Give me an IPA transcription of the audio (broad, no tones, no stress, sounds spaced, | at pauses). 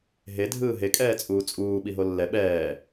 ɦ e dʱ ɯː ɦ e kʼ ɛː t͡sʼ uː t͡sʼ uː ɓ i ɦ o lː ɛ ɓ ɛː